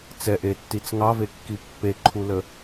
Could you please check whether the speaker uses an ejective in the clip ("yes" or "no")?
no